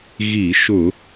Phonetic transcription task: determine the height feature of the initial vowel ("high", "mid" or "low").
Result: high